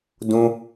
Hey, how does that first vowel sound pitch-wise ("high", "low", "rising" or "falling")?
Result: high